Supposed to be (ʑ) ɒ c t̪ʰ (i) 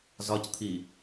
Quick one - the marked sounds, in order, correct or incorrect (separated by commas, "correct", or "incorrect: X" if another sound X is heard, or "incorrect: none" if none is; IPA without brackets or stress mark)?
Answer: incorrect: z, correct